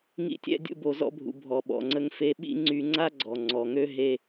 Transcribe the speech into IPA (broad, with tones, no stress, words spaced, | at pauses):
ŋḭ˦tʲɛ̰˦ dʲṵ˦bo˧zɔ̰˦bʱṵ˧ bʱɔ˧ɓɔ̰˧ŋ͡ǀə˦ŋ fe˧ɓḭ˦ ŋ͡ǀy˧ŋ͡ǀa˦ɡ͡ǀɔ˨ ŋ͡ǀɔ˨ŋø˦ ɦe˧